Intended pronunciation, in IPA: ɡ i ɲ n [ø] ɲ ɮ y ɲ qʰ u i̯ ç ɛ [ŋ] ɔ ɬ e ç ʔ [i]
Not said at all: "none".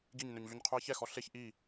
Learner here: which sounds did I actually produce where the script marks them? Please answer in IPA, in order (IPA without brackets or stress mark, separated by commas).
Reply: ø, x, i